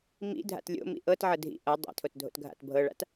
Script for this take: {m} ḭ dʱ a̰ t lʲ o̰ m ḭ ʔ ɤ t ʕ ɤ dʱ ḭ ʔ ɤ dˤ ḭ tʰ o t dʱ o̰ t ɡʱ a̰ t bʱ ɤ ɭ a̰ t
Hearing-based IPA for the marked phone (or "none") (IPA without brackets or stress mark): m